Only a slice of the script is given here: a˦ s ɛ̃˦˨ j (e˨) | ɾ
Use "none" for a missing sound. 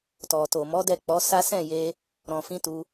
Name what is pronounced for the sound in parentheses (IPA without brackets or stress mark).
e˧